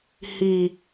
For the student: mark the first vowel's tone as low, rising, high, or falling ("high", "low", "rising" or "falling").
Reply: low